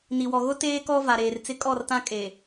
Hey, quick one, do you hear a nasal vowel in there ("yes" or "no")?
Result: yes